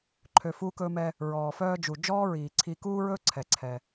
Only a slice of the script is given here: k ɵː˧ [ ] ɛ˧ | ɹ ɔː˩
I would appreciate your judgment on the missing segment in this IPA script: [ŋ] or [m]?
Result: m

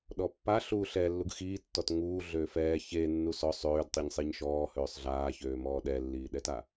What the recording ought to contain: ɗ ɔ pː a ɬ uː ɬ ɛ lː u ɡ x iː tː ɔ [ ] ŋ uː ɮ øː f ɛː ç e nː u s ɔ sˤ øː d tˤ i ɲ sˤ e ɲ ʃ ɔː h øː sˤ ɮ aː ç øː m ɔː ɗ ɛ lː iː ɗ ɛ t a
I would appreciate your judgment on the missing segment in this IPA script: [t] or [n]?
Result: t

